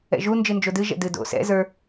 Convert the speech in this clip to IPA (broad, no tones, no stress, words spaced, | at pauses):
ɛ̰ʒu nd͡ʒɨnd͡ʒodɨ ʒɛ̰dɨdo̰ sɛ̰ zə˞